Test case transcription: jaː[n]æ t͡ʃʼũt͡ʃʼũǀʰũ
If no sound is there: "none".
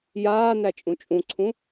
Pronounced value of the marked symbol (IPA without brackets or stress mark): n